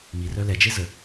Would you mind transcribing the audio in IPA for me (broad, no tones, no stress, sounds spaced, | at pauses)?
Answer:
m i r œ l ɛ d͡ʒ e z ə